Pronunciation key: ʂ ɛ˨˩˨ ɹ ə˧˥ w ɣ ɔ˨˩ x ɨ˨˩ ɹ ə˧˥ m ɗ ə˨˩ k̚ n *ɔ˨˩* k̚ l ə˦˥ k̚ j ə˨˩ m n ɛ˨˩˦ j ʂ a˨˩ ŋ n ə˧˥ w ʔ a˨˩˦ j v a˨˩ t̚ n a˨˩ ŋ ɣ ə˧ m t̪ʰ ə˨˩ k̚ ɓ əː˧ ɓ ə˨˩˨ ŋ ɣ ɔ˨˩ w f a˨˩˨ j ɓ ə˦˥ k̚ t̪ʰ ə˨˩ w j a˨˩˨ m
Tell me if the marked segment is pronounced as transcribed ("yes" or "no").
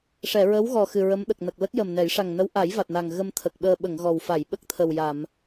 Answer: no